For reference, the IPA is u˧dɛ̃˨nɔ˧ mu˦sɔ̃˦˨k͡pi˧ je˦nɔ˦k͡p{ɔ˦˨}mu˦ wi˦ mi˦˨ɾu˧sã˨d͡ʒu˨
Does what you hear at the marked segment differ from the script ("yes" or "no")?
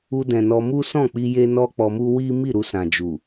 yes